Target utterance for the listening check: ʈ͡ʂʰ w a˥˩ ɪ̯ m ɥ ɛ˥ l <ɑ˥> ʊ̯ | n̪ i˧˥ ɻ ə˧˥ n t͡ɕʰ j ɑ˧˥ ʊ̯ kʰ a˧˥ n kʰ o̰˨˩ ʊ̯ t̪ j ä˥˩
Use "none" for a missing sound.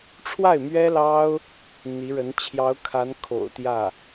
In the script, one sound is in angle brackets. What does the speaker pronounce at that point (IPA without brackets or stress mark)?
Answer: ɑ˥